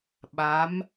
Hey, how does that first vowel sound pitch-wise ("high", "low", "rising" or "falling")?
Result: rising